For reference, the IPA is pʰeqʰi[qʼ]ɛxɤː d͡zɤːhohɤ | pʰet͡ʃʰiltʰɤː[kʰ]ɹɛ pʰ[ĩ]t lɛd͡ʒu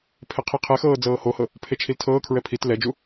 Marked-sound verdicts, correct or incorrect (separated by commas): incorrect, correct, incorrect